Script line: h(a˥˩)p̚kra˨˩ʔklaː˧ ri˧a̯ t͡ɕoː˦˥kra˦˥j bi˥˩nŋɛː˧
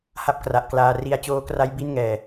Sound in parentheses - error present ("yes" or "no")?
no